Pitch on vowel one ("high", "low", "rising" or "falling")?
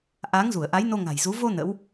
rising